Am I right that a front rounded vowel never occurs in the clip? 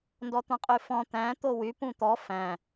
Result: no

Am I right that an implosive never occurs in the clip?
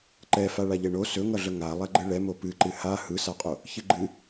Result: yes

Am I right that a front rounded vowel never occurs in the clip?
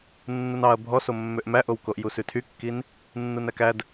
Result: no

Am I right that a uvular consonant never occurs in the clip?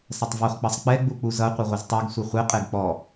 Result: no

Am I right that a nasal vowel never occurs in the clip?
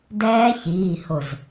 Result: yes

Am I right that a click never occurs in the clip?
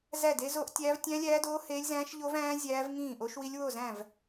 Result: yes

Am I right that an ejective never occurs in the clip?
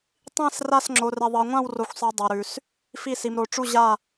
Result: yes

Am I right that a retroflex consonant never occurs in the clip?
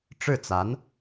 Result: no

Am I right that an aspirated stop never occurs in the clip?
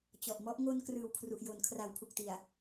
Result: no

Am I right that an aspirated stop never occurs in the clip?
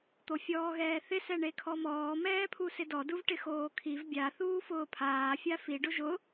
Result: no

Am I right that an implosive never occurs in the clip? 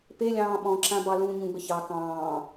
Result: no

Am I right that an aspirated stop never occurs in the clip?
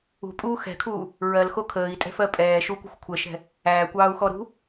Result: no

